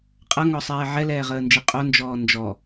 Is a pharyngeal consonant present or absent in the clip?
present